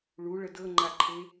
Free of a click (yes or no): no